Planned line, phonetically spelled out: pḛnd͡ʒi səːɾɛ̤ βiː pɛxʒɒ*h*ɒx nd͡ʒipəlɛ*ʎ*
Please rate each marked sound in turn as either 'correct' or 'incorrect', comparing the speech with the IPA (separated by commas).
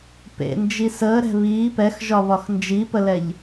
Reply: incorrect, correct